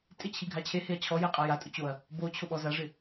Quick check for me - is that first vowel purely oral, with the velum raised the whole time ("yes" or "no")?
yes